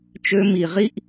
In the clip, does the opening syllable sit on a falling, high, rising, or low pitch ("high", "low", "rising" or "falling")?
low